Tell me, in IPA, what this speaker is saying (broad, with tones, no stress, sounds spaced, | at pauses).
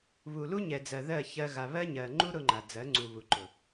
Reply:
β u˨ l u˦ ɲ ɛ˨ d͡z ɜ˨ ð ɜ˦˨ ç ɜ˦ ɣ a˨ β ɜ˦ ɲ ɜ˨ ŋ͡ǃ u˦ ɾ ʊ˦ ŋ͡ǃ a˨ d͡z ɜ˨˦ ŋ͡ǀ u˨ β u˨ ǃ ʊ˨